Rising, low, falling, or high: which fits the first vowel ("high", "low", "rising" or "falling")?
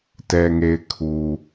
low